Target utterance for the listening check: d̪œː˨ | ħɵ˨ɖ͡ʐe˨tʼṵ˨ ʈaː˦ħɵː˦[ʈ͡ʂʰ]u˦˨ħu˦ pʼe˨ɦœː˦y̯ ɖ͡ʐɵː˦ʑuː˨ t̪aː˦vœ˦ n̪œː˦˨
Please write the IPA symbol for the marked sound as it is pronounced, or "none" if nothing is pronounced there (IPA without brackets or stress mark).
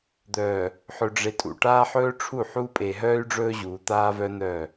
ʈ͡ʂʰ